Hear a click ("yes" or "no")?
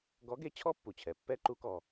yes